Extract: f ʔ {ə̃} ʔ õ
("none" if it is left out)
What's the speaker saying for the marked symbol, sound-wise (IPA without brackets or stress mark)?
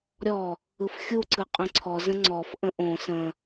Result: ə̃